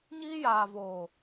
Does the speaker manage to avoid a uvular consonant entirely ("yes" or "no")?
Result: yes